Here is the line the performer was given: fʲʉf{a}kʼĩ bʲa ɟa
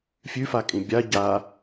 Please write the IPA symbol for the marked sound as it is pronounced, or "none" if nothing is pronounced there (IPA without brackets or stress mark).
a